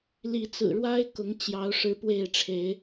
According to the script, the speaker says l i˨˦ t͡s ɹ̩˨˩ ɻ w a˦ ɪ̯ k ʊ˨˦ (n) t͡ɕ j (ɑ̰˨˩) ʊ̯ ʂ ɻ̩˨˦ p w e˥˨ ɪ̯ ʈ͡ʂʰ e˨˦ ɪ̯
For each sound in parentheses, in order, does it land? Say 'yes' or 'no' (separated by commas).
no, no